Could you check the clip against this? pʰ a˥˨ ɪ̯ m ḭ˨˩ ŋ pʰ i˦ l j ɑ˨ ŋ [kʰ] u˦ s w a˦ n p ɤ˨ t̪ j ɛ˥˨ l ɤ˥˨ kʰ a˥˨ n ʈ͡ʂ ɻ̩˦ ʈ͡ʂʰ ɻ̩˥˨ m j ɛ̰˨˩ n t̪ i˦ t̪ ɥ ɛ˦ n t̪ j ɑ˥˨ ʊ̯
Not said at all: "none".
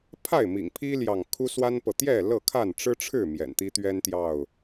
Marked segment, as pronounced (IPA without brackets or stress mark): kʰ